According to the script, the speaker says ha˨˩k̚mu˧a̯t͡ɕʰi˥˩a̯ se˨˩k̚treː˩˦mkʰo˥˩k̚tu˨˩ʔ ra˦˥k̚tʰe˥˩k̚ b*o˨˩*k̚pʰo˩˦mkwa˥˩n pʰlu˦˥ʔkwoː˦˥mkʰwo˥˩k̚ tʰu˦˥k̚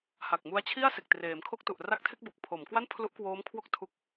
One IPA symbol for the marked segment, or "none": o˨˩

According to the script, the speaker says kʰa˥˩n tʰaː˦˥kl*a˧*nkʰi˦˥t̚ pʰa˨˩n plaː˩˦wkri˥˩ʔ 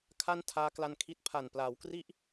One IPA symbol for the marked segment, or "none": a˧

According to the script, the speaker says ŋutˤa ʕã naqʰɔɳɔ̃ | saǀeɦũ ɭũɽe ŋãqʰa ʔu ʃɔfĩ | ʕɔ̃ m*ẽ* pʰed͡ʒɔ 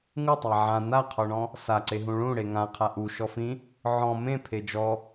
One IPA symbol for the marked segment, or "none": ẽ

